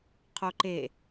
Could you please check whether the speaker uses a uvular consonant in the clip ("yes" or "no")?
yes